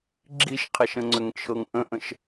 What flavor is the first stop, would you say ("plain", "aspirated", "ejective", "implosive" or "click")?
click